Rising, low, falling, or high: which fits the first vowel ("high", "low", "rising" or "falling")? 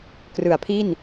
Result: low